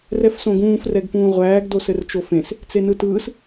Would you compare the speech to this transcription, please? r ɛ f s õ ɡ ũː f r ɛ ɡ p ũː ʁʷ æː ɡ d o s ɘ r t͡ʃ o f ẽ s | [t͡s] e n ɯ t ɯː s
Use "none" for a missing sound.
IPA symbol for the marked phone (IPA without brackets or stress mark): t͡s